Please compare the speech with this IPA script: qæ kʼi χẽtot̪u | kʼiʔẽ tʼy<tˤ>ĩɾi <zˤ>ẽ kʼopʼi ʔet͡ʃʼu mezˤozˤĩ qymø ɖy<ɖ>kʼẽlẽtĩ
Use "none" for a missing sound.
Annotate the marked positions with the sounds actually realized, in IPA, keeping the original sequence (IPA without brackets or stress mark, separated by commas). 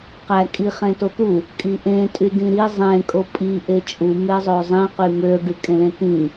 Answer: d, zˤ, none